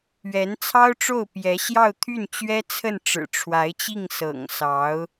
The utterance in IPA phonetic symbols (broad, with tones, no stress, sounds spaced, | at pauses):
ɥ ɛ˧˥ n t͡sʰ ɑ˥ ʊ̯ ʈ͡ʂ o˥˩ ʊ̯ p j ɛ˧˥ ɕ j ɑ˥˧ ʊ̯ t̪ʰ y˥˩ n t͡ɕ ɥ ɛ˥ t͡sʰ ə˥˩ n ʈ͡ʂ ɻ̩˨˩ ʈ͡ʂʰ w a˧˥ ɪ̯ t͡ɕ i˥˩ ŋ s ɤ̰˨˩ ŋ s ɑ˧˥ ʊ̯